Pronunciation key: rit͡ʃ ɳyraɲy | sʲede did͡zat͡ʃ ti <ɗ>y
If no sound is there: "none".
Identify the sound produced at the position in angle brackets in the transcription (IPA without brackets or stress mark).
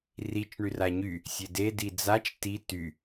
t